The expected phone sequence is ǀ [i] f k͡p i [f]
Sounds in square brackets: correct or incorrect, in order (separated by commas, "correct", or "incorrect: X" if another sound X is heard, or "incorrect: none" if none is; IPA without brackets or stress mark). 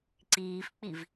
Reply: incorrect: iː, incorrect: v